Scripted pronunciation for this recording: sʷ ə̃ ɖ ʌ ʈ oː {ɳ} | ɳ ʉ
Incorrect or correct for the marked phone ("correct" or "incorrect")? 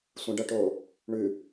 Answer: incorrect